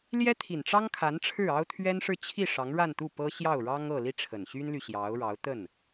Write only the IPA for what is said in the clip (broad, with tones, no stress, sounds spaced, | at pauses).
l j ɛ˥ t̪ʰ i˨˩ n ʈ͡ʂ ɑ˥ ŋ kʰ a˧˥ n ʈ͡ʂʰ ɻ̩˥˩ ɑ˥ ʊ̯ t̪ʰ ɥ ɛ˥ n ʂ ɻ̩˥˧ t͡ɕʰ i˥˩ ʂ ɑ˧˥ ŋ ɻ a˥˧ n t̪ u˥˩ p ɤ˥ ɕ j ɑ˥˩ ʊ̯ ɻ ɑ˥ ŋ ɤ˥˧ l i˥˩ ʈ͡ʂʰ ə˨˩ n ɕ y˥ n l y˨ ɕ j ɑ˧˥ ʊ̯ ɻ ɑ˧˥ ʊ̯ t̪ ə˥˩ n